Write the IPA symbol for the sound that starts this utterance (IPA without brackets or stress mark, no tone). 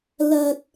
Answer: l